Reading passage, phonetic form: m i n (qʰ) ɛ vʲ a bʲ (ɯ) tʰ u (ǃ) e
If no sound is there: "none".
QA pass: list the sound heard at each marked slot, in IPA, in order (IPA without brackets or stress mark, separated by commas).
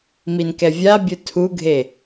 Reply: k, ɯ, ɡʱ